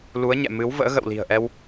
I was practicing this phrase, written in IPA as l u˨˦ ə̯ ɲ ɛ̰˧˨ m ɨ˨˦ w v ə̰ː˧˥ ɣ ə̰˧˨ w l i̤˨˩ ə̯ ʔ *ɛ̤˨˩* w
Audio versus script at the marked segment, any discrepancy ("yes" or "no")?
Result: yes